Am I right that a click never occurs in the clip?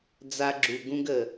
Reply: no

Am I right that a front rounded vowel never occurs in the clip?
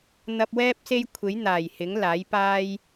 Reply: yes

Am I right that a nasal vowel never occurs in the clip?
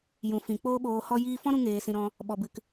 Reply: no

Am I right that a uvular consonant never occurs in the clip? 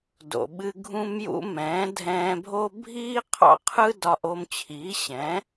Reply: no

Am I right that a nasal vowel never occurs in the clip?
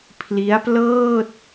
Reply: yes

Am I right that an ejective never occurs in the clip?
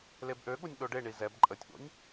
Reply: no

